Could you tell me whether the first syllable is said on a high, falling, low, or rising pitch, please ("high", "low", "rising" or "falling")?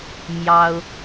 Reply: high